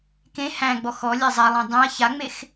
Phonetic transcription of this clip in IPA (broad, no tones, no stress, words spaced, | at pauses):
kẽ hæ̃ɡ͡bɔx ɔlʲe zˤalˠẽ dˤẽɐ̯ çaŋ͡mex